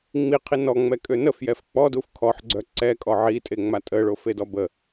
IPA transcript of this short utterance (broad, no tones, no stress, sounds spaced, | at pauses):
ŋ͡m i qʰ i n ɔ ŋ͡m ɛ kʼ ø n ə f j ɛ f k͡p ɔ d u f kʰ ɔ ħ ɡ͡ǀ œ ǀ ɛ kʼ ɔ ʕ i tʼ e ŋ͡m a tʼ ə ɭ o f e d ɔ b ə